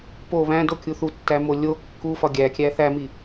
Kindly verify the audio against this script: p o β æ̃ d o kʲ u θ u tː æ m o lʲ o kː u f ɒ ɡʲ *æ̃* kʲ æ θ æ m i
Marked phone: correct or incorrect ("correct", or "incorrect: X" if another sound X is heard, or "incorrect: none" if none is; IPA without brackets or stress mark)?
incorrect: æ